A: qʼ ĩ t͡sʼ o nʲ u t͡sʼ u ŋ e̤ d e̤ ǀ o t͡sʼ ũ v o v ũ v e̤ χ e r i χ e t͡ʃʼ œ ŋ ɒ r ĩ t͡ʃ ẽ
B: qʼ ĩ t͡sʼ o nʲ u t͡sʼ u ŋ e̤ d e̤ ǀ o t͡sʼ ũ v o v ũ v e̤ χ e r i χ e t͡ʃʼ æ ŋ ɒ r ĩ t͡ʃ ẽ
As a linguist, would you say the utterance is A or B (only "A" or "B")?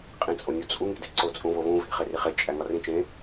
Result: B